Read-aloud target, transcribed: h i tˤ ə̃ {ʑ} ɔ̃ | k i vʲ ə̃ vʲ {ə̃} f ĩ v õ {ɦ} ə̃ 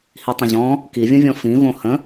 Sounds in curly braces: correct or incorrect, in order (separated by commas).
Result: correct, incorrect, incorrect